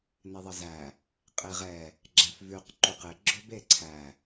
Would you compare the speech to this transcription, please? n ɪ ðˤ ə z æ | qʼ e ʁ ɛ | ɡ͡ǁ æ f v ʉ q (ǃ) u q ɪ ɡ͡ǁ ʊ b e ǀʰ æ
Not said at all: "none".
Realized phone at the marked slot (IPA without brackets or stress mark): ǃ